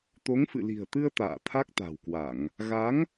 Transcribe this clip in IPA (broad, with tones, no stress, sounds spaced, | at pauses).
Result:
t̪ o˨˦ ŋ f ɨ̰˧˨ l i̤˨˩ ə̯ t̪ ɨ˧ ə̯ t̪ a̰ː˧˨ t̪ʰ a˦˥ k̚ t̪ a̤˨˩ w k w a˧˩˨ ŋ | ɣ a˨˦ ŋ